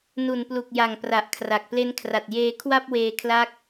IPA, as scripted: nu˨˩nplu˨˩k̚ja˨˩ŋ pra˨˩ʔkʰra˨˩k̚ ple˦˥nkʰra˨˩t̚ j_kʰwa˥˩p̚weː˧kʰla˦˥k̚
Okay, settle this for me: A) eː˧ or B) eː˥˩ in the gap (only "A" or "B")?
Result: A